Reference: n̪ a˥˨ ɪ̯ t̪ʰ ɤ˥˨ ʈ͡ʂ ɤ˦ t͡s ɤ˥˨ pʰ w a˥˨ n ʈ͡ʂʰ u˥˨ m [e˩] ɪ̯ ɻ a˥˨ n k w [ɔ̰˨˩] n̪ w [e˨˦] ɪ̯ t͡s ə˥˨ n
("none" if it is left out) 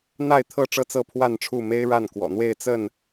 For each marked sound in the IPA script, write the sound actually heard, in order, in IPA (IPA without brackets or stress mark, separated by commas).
e˦, ɔ̰˨˩, e˥˨